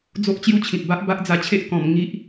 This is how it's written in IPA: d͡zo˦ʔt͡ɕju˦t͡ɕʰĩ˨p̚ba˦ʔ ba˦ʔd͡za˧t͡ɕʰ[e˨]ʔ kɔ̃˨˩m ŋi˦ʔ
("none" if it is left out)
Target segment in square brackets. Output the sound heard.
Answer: e˦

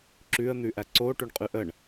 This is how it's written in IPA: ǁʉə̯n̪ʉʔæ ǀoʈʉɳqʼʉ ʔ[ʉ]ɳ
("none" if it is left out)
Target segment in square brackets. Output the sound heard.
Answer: ə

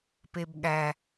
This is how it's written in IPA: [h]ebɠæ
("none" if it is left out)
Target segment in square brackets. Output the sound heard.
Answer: p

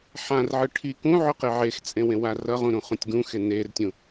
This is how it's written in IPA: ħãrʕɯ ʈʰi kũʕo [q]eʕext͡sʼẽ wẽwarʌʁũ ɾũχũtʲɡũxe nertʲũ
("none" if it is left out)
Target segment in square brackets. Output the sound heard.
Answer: q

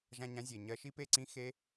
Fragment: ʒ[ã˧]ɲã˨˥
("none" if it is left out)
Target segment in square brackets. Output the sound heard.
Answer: ã˧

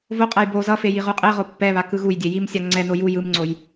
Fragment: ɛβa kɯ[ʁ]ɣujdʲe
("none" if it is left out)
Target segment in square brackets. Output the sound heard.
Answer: none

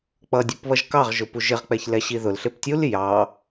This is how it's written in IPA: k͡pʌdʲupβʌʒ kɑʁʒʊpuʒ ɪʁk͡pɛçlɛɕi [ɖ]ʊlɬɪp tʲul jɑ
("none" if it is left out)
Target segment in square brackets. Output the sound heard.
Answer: ð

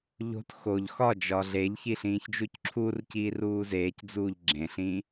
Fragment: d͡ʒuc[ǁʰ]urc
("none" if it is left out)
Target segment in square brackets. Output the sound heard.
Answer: ǁʰ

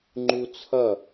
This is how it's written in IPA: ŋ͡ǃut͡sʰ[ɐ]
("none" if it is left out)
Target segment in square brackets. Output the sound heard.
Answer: ɐ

